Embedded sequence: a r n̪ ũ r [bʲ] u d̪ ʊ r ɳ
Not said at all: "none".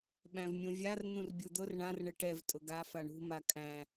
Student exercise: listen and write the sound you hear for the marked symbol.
bʲ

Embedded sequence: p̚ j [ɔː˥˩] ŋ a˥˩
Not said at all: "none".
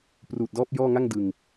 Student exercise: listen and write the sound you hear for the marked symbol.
ɔː˥˩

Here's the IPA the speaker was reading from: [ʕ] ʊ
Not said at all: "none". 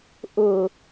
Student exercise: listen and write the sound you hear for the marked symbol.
ʔ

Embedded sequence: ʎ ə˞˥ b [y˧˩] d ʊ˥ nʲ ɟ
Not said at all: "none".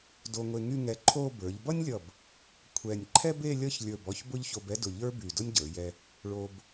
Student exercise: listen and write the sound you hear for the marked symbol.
y˧˩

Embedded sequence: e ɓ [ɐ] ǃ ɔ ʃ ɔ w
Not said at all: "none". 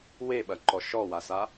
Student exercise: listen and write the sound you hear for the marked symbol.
ɐ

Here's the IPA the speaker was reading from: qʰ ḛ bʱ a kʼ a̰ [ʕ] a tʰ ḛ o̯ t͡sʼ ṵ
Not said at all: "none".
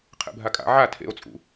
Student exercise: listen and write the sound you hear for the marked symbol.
ʕ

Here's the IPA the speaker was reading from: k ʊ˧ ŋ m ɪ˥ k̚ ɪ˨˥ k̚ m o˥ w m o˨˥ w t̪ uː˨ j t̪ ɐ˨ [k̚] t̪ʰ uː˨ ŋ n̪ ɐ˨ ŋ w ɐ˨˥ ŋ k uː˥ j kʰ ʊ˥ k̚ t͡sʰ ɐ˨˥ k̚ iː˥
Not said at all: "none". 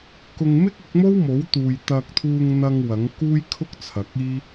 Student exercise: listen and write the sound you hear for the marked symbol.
k̚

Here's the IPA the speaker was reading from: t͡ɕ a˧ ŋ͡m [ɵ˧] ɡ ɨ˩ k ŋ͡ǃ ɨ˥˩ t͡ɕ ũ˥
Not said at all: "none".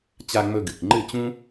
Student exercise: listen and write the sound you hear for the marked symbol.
ɵ˧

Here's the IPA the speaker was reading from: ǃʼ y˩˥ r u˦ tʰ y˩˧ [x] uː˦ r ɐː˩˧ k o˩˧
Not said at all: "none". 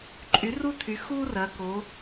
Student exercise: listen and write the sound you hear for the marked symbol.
x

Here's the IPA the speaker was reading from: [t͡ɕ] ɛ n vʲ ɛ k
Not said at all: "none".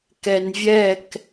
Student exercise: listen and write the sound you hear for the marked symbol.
k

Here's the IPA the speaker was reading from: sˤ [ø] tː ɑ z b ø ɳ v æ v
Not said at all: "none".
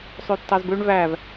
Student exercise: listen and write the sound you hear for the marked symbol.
ø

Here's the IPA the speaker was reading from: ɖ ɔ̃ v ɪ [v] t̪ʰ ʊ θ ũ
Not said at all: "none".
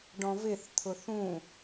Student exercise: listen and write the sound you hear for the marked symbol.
θ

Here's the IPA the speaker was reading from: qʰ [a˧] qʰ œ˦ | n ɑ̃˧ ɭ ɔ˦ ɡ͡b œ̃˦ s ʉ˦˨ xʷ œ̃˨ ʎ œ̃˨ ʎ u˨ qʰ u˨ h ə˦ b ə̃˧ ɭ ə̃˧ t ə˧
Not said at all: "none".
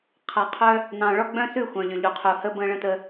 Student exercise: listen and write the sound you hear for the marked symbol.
a˧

